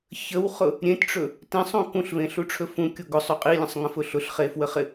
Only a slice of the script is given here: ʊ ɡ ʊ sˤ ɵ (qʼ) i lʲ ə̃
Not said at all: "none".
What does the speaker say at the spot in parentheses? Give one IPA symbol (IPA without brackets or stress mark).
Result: qʼ